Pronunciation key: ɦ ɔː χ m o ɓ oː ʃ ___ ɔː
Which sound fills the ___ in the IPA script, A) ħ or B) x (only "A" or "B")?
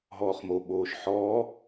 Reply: A